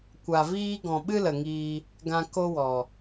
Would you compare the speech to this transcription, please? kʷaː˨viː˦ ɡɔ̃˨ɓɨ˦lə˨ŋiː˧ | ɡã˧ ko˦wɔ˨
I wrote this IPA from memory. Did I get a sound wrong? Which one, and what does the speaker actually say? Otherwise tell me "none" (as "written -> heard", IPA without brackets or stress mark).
aː˨ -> a˨